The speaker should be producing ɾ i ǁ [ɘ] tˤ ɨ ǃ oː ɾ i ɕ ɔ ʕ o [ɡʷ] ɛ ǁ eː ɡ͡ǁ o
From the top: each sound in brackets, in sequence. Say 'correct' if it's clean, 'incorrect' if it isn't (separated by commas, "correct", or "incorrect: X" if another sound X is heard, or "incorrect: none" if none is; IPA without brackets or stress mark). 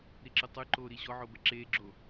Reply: correct, incorrect: b